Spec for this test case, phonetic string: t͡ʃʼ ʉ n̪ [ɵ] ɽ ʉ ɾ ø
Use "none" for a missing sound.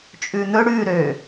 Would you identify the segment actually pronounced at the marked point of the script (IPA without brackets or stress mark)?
ɵ